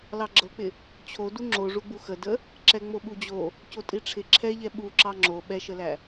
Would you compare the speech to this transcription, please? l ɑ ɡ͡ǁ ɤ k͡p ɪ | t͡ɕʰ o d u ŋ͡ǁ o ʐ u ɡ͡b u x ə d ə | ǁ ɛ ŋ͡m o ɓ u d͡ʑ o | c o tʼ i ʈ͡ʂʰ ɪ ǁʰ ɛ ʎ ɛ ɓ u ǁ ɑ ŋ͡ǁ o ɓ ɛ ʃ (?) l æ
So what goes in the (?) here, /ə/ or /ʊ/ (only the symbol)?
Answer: ə